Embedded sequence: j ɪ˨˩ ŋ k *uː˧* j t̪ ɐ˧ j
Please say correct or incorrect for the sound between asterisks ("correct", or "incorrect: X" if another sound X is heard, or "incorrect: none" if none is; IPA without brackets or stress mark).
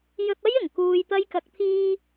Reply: correct